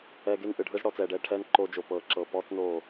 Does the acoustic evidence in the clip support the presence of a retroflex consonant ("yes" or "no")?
yes